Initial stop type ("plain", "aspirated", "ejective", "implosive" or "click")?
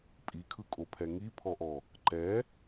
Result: ejective